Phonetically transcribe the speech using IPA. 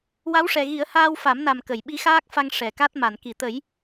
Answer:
w a˧˥ w ʂ ɛ˨˩ ɣ i˨˩˦ ə̯ h aː˧ w f a˨˩˦ m n a˨˩ m k ə˨˩˨ j ɓ i˧˥ x aː˦˥ k̚ f a˧ ŋ ʂ ɛ˨˩˨ k a˦˥ t̚ m a˨˩˨ n k i˨˩˨ t̪ ə˨˩˦ j

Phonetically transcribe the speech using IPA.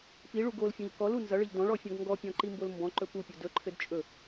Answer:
p i ɭ u ɡ o l fʲ ɔ̃ ʎ k ɔ l u n z ʌ ɭ ɘ ʎ d ɔ̃ ɭ ɔ fʲ ɔ̃ ɡ ŋ ɡ ɔ pʲ ɔ̃ ǃ i m b o l m b ɔ̃ ǃ ɵ p u pʲ o d ɵ ǃʰ ɘ d t͡ʃʼ ɵ

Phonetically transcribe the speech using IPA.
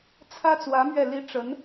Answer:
t͡sʰ ä˥ t͡s w ä˧˥ m ɥ ɛ˥˩ l i˥ ʈ͡ʂ ə˧˥ n

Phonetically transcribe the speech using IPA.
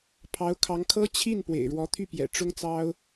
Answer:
pʰ ɑ˧˥ ʊ̯ kʰ ɑ˧˥ ŋ kʰ ɤ˥ t͡ɕʰ i˥˩ n p w ḛ˨˩ ɪ̯ ɻ w ɔ˧˥ t̪ʰ y˥˩ p j ɛ̰˨˩ ʈ͡ʂ ʊ˥ ŋ t͡s ɑ˥ ʊ̯

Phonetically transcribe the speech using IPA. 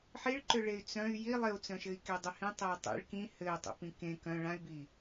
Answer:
ħ i ɭ ǃ ʏ ɭ e y̯ t͡s œ̃ y̯ j i lˠ ɪ u̯ t͡s œ̃ ʃ ɘ i̯ k e dˤ ʏ h ĩ tˤ e u̯ tˤ ḭ ɭ k ĩ h ɘ y̯ tˤ ḭ p ĩ k ẽ k œ̃ ɭ ã y̯ b i

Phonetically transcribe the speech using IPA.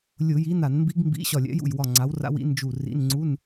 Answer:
lʲ ʊ˧˩˧ j i˨˥ n a˧˩˧ n m b i˦˥ ɡ m b ḭ˧˥˧ ɕ ɒ˧˩ lʲ ɛ̰˨˥ j ṵ˧˩ j w ɒ˧˩ ŋ͡ǀ a˨˥ w r a̰˦˥ w ḭ˨˥ n d͡ʒ u˧˩ r ḭ˧˥˧ n ŋ͡ǀ u˧˥˧ n

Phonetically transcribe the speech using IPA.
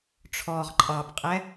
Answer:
ʈ͡ʂʰ ɔː ʁ ǃʼ ɑ p qʼ ɛ

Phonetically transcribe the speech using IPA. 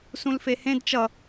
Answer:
s ũ l f e h ẽ d t͡ʃ ʌ

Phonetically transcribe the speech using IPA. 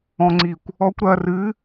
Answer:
ɔ̃ ŋ͡ǀ i kʷ | ɔ kʷ ɾ ɐ r ɨ

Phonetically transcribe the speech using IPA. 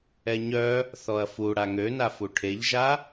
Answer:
ɛ ɲ œ | θ ɔ ɐ̯ f u ɽ a ŋ ø n a f u ʈʰ e ʎ ʒ a

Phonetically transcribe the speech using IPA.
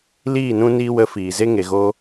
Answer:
l iː˦˨ n ũ˧ n iː˧ w ə˨˦ f iː˨ z e˦ ŋ e˨ ɣ o˧

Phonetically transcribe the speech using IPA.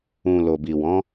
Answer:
ũ˨ l o˨ b i˨ w ɔ̃˨˦

